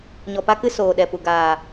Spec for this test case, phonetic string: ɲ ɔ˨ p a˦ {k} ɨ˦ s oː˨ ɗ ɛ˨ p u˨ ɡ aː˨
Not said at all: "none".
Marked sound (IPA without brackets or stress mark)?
k